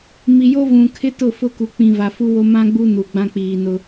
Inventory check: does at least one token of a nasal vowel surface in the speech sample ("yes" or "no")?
yes